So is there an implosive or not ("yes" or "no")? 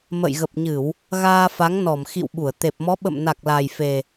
yes